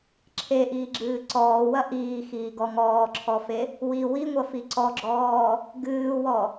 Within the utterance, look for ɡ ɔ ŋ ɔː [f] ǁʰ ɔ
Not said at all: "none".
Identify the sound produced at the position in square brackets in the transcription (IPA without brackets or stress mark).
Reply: none